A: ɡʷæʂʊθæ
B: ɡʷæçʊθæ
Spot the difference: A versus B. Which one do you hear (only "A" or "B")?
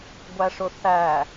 A